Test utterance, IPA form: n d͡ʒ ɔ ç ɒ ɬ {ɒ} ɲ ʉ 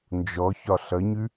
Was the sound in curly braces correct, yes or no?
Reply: no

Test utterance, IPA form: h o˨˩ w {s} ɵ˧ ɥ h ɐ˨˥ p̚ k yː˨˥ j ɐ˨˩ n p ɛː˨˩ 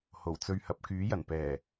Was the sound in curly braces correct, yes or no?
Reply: no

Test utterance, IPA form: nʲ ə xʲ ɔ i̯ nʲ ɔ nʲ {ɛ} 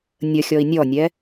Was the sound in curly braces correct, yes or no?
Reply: yes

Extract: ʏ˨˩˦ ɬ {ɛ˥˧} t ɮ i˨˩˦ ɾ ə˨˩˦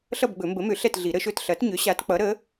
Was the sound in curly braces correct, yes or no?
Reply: yes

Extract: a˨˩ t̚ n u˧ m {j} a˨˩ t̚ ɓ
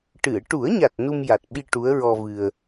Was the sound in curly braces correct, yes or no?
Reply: yes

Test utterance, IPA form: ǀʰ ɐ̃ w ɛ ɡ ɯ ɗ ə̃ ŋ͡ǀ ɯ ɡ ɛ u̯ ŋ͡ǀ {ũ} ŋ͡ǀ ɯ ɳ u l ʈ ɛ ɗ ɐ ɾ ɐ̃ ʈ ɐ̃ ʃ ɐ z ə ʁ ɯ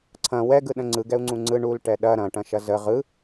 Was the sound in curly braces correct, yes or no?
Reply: yes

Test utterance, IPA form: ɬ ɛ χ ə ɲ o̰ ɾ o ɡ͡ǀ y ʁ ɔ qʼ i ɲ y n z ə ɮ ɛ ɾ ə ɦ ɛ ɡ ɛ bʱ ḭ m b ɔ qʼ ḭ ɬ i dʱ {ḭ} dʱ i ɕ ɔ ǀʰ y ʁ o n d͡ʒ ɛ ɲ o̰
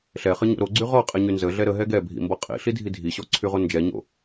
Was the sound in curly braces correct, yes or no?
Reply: no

